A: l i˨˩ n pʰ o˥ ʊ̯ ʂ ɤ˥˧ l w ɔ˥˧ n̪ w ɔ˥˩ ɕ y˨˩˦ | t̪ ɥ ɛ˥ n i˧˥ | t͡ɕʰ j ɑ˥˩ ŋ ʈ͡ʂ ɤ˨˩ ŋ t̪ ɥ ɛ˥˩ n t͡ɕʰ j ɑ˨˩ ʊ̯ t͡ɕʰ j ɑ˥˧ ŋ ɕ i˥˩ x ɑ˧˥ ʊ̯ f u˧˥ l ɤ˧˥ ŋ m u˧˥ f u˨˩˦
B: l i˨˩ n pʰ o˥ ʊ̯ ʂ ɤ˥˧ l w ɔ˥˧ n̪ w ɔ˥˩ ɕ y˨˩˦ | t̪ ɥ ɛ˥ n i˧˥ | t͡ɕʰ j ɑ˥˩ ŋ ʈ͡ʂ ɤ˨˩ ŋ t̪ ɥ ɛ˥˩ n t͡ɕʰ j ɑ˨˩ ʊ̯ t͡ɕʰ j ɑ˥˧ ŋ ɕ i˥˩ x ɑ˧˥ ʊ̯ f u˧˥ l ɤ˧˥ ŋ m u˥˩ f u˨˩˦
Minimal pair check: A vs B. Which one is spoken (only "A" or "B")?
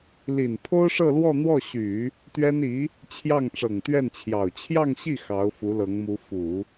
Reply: A